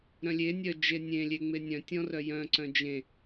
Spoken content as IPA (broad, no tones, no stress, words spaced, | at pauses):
ɾœ̃lʲe nʲœd͡ʒenʲẽ lʲeŋ͡menʲœ̃ tʲɔ̃rœjœ̃ ǀœ̃d͡ʒẽ